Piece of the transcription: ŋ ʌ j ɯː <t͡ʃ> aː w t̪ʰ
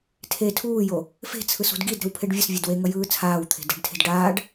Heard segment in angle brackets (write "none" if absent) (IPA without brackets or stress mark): t͡sʰ